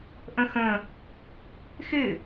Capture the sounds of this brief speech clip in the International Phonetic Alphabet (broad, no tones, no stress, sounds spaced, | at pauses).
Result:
ʔ ə̃ x ə̃ | x ɪ